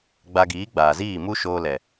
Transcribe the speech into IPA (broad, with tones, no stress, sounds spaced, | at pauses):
ɡ͡b a˧ ɡ iː˨˦ ɡ͡b aː˨ z iː˦˨ m u˦ ʃ oː˧ l ɛ˨